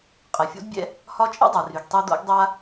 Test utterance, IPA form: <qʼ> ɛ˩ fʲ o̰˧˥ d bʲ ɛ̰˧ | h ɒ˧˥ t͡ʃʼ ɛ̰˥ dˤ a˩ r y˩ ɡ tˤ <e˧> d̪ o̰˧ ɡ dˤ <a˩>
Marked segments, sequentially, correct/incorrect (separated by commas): correct, correct, incorrect